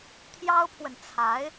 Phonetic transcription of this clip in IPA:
t̪ʰ j ɑ˥ ʊ̯ pʰ w ə˨ n t͡sʰ a˧˥ ɪ̯

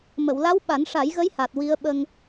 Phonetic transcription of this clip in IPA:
m ə˨˩˨ w l a˧˥ w ɓ a˨˩˦ n ʂ a˨˩˦ j ɣ ə˧˥ j h a˨˩ t̚ w i˧ ə̯ ɓ ə˧ ŋ

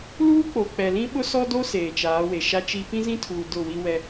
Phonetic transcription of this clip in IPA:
l uː˦ k͡p o˨ k͡p ɛ˨ l ĩ˦ ɓ ʊ˦ s ɔ˦ d o˦ s eː˨ t͡ʃ aː˨˦ w e˨ ʃ a˦ t͡ʃ i˦ p ĩ˦ z ĩ˦ tʰ uː˨ d ʊ˦˨ w i˦ w ɛ˦

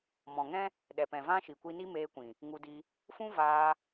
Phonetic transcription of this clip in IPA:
m ɔ̃˨ ŋ ɛ̃˦ | ɗ ɛ˨ p ɛ̃˨ v ã˦ ʃ i˨ kʷ i˧ n i˦ m eː˧ kʷ ĩ˨ | ŋ u˧ d i˧ | f ũ˦ v aː˧

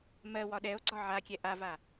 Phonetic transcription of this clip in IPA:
m ɜ w ɒ ɗ ɛ o̯ ɡ͡ǀ ɒ ʕ a kʲ ɛ ʔ a v a

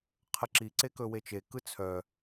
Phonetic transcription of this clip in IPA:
qʰ ə ǁ i ǀ e k ɵ w e t͡ʃ e k ɯ t͡sʰ œ

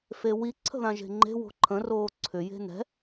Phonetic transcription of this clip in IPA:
f e w i ǀʰ ə̤ ð ã ʒ e̤ ŋ͡ǃ e̤ w o̤ ǃʰ ə̃ r oː ǀʰ ʏ j e̤ n ɛ̤

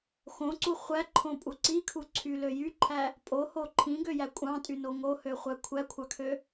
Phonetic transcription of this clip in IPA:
x õ ǀ u χʷ æ ǃʰ õ pʼ u ǀ i kʰ u ǀʰ y l ø j y ǃʰ æ | pʼ o h o ǃʰ ĩ ɡ ø j æ kʷʼ ɑ̃ tʼ y n o ŋ o h ø χʷ æ kʷʰ æ kʷʰ ɑ kʰ ø

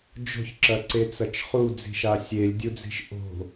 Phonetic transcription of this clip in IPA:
d͡ʒ o̤ ç ǁ ɐ ǀ e t͡s ɐ t͡ʃ χ u d͡z i̤ ʃ a sʲ e lʲ dʲ u d͡z i̤ ʃ ʔ o̤

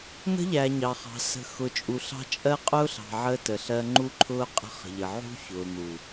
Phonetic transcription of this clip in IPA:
n̪ ə̤˦ ʎ æ˨ ɲ ɑ˨ χ ɑ̤˨ s ə̤˨ x ʊ˨ t͡ʃʼ u˨ ɬ ɑ̤˦ t͡ʃʼ ɜ˦ qʼ ʊː˦ ɬ ɑ̤˨ ʕ əː˦ t ə˨ ɬ ɜ˦ ŋ͡ǃ u˦ ǃʰ ʊː˦ qʼ ə̤˦ χ ə̤˨ ʎ ə˨ ʕ ṳ˦ ç ʊː˨ n̪ u˨

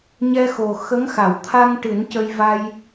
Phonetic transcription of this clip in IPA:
ɲ ɛ˧ x o˨˩ x ə˧˥ ŋ x a˨˩˨ w t̪ʰ a˧ ŋ ʈ ɨ˨˩˦ n c ə˧ j v a˧ j

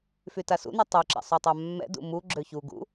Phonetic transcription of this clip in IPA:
f y t a s ṵ n u tˤ y ǁ ɛ̰ sˤ u tˤ a mː ɛ̰ d ṵ m u ɡ͡ǁ ø ç u ɡ ṵ

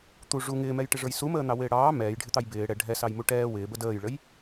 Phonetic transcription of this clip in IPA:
t̪ u ʐ u ŋ ɪː m ɛ j ʈ ɪ ʐ ə˞ j s u m əː n̪ ɑ w ɪː ɽ ɑː m ɛː j ɖʱ ɪ t̪ ɑ j b ɪː ɽ ɛ ɖʱ ɛ s ɑ j m u ʈ ɛː w ɪː b ə d əː j ɭ ə j

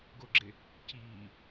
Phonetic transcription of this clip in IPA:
ɡ o ɡ͡ǁ e | c iː

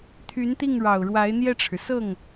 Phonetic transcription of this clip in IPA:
t̪ʰ y˧˥ n t̪ i˥˩ ŋ ɻ ɑ˨˩ ʊ̯ ɻ w a˧˥ ɪ̯ n̪ j ɛ˥˩ ʈ͡ʂʰ ɻ̩˩ s ɤ˥˩ ŋ

